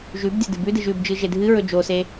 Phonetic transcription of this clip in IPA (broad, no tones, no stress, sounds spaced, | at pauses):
ʒ ʉ b dʲ ɐ d ɨ b ʉ d ɨ ʒ ʉ b d͡ʒ ɨ ʒ e dʱ ɨ ɹ ɵ d͡ʒ o s e